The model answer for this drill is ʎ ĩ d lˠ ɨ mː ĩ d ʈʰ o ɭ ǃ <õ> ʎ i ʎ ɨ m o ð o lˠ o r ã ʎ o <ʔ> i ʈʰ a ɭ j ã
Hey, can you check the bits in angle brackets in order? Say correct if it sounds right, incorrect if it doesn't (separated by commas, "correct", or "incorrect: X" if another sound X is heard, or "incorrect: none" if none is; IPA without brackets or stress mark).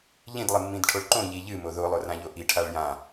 correct, correct